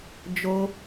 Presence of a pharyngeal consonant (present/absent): absent